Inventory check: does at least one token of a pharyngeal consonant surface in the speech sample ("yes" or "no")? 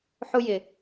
yes